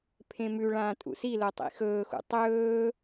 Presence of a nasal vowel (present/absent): present